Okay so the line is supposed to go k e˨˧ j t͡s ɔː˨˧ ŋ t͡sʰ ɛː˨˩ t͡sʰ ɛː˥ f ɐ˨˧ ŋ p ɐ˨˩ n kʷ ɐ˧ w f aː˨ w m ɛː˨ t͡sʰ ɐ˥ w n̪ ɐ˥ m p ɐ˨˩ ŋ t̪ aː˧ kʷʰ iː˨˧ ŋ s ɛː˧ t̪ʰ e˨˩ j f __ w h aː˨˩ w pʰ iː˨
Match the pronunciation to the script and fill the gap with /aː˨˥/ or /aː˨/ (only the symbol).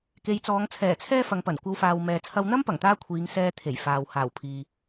aː˨